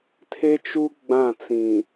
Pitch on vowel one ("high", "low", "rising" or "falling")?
high